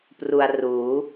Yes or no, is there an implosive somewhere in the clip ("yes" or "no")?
no